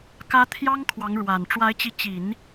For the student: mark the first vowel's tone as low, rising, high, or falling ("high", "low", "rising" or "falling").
high